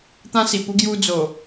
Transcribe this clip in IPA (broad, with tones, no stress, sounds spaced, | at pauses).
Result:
t̪ ã˧ s i˨˩ p u˧ ɡ j u˧ d͡z o˨˩